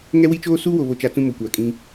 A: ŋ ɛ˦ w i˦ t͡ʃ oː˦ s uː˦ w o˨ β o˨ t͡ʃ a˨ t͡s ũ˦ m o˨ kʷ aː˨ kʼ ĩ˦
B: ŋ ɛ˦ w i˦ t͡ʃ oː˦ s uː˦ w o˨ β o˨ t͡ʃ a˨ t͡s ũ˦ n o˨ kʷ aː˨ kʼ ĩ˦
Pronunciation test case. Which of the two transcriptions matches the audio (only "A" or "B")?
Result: A